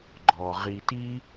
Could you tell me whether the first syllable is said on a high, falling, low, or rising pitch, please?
low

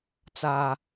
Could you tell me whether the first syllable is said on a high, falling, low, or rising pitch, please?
low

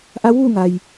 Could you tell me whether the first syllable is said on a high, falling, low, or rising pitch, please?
rising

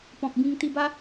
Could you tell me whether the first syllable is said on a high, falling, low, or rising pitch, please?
low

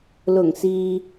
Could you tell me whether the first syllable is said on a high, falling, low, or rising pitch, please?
low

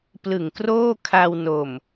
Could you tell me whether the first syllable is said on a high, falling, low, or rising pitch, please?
low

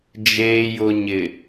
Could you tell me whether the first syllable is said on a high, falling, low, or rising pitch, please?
low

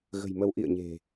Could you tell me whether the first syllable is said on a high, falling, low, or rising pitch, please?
low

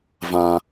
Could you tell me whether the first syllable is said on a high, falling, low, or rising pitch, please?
high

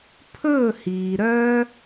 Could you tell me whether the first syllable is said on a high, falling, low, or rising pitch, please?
falling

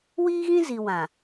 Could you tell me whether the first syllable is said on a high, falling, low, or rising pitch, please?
high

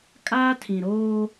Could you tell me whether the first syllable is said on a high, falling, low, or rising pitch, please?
high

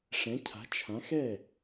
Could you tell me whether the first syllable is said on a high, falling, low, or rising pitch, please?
rising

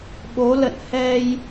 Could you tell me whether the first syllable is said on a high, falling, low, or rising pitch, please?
rising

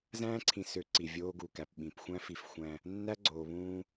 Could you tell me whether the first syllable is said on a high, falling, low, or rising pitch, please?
high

